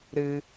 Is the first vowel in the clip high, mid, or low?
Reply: high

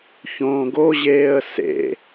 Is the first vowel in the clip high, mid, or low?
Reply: mid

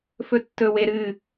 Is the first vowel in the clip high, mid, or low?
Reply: mid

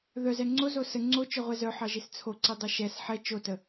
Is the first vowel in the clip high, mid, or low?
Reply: mid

